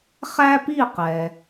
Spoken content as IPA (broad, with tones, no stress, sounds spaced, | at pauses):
χ æ˥ p i˥˩ q ɛ˩